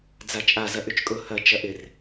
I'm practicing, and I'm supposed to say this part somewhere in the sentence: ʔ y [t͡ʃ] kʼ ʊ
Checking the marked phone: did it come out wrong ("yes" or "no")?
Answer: no